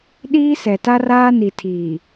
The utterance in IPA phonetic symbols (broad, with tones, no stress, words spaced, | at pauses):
ɗiː˦ sɛ˨ta˦raː˦ni˨ tʰiː˨